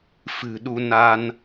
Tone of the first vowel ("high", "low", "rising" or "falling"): low